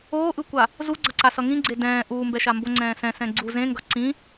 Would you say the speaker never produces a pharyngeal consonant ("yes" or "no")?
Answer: yes